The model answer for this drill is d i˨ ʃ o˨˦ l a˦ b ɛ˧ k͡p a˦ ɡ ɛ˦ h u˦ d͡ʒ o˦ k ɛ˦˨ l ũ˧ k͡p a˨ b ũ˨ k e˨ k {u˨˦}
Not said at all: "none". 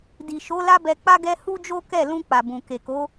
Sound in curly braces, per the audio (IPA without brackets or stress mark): o˨˦